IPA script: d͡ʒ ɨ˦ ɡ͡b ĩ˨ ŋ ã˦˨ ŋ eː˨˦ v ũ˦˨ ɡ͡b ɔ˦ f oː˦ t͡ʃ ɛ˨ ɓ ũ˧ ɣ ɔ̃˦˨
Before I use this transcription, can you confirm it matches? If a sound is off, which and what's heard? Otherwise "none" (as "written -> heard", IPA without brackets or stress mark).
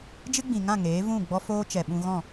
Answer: none